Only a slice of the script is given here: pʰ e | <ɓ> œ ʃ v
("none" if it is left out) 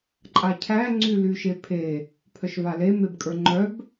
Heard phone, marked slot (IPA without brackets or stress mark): pʰ